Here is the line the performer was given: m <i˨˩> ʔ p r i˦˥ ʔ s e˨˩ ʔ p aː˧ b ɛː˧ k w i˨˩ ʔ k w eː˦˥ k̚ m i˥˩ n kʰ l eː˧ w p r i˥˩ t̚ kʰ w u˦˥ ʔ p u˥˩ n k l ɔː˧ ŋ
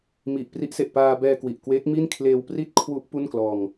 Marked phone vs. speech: correct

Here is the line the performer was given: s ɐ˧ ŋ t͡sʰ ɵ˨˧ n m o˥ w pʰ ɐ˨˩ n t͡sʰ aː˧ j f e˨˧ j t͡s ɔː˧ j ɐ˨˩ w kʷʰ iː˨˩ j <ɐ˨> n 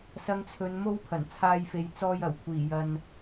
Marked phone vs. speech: correct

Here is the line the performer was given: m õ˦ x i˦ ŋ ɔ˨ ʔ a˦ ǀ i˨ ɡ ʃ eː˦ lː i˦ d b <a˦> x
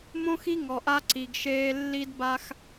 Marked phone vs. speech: correct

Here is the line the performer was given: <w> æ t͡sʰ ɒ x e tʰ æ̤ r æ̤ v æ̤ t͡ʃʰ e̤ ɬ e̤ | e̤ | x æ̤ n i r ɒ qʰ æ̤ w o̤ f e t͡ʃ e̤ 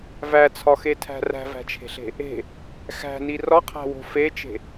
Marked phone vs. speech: incorrect: v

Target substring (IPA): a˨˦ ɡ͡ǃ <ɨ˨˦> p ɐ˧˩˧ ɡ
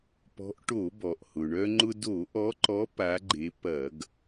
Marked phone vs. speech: incorrect: e˨˦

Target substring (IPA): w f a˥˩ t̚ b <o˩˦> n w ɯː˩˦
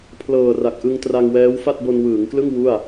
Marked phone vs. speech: incorrect: o˧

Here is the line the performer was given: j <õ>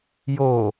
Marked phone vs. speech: incorrect: o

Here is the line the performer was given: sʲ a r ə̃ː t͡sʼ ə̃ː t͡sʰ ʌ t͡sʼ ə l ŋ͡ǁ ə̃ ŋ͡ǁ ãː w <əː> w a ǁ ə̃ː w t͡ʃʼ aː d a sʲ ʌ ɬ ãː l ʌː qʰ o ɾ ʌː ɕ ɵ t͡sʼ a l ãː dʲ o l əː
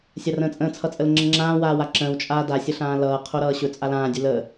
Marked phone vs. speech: incorrect: aː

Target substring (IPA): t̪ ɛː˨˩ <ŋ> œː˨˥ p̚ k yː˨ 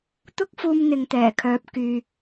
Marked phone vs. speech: incorrect: kʰ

